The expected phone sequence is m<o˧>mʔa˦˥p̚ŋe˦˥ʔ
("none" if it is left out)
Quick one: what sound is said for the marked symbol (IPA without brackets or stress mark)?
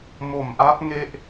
o˨˩